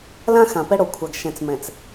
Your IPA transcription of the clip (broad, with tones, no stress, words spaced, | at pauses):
lã˦ xã˨pɛ˦ɽo˨kʷʰa˨ɡ ʃɛ̃˨t͡s mɛ̃˨t͡s